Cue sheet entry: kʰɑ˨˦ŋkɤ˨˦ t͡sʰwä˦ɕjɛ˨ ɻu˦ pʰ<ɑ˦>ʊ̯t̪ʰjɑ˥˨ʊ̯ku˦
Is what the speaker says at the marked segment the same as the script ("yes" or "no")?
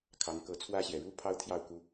yes